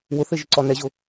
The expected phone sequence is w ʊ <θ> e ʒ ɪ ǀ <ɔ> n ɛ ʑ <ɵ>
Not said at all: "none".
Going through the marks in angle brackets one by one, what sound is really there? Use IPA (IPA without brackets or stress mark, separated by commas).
θ, ɔ, ʊ